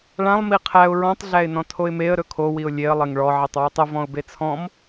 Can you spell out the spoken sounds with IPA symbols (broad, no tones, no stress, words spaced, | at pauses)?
ɭãlˠ miqʰæʊ̯ ɹɔ̃tˤ ɮæɪ̯nɔ̃tʰoɪ̯meə̯ ɾɵkʰo wiʊ̯lʲeə̯ lˠeŋɭɔ ʕitˤwitˤə vɔ̃ʊ̯bet͡sʰɔ̃m